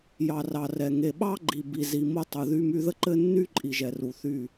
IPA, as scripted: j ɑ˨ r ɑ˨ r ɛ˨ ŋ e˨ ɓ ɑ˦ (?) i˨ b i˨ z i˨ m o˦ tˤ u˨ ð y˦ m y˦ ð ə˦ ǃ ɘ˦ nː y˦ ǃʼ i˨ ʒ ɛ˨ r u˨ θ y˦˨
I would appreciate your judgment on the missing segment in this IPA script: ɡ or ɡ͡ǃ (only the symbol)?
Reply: ɡ͡ǃ